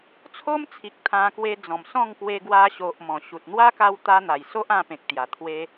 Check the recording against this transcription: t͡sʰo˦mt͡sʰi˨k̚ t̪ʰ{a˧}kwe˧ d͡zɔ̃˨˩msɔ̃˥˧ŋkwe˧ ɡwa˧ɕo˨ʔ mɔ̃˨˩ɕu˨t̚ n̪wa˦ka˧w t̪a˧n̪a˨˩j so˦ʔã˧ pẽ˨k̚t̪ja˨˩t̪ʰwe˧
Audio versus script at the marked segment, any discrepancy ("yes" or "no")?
yes